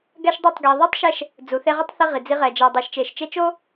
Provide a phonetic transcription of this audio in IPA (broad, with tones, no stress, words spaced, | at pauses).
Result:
ɡɛ˧ʃ dˤo˦˨tˤ ɡi˨ ðˤa˦tˤʃɛ˧ʃ | d͡zu˨ θe˧ʁi˦tˤθi˧ ʁi˨ d͡zi˧ʁɛ˨ d͡ʒa˨dˤe˨ʃ t͡ʃe˨ʃ t͡ʃe˧ t͡ʃo˦